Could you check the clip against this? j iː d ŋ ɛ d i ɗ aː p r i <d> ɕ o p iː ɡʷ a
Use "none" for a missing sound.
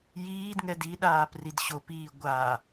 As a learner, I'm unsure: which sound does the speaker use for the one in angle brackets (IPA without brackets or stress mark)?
d